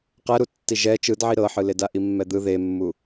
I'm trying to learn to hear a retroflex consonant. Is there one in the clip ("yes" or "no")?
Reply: no